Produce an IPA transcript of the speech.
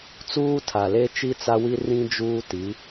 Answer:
t͡s uː˦ tʰ a˨ l e˦ t͡ʃ i˦ t͡s a˦ w i˦ r ĩ˦ d͡ʒ uː˦ t i˨˦

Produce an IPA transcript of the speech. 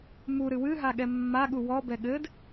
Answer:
m u ɾ ɨ w ɨ ɦ a ɠ ɛ mː a ɠ u w ɔ b ɛ ɠ ɘ d

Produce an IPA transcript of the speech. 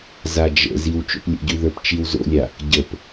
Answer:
z a d͡ʒ ə̰ z i w t͡ʃ o̰ p lʲ ə̰ ɟ ʉ ð ə˞ p t͡ʃ i w z o̰ lʲ a | ɟ ə p

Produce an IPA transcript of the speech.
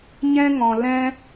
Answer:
ɲ ɛ̃˧ ŋ ɔ̃˨ l ɛ̃˧

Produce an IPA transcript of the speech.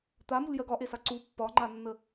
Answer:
t̪ a m u l j ɜ ɡ ɒ ʔ e s a ǀ u pː ɒ ŋ͡ǃ a nː ə

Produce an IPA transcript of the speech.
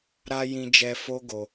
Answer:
ɾ a˧ j ĩ˧ d͡ʒ ɛ˧ f o˦ ɡ o˧

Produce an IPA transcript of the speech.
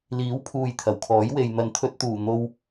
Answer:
l iː˨˥ w pʰ uː˨ j t̪ʰ ɐ˨˩ w kʰ ɔː˨˥ j w e˨ j n̪ ɐ˨ n t̪ʰ ɵ˧ t̚ t̪ uː˨˩ n̪ o˧ w

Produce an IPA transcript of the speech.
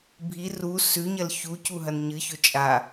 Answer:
bʱ i r u s ʉ ɲ ɐ l ç u c u ɦ ɐ n ɲ ɨ ç ɵ t͡ʃʼ a

